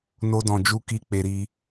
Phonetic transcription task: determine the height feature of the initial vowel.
mid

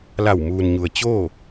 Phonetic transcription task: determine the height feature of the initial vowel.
low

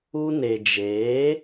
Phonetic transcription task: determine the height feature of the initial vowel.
high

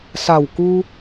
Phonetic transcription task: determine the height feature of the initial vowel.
low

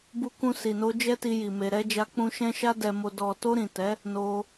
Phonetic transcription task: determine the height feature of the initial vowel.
high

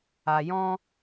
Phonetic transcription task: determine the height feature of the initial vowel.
low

